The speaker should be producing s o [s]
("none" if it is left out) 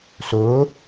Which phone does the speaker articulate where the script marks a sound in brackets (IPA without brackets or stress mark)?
none